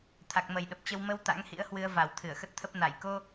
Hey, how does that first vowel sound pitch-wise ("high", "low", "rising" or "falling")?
low